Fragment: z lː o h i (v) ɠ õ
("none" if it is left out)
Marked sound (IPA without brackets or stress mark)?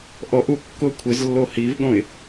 v